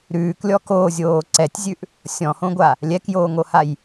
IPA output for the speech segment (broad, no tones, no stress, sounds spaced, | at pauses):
ɾ ʉː k lʲ ɔ k oː zʲ oː ǀ ɛ tʲ zʲ ʉ ʔ | sʲ ɔ̃ h õ ɡʷ a | lʲ ɛ k j oː ŋ o h a j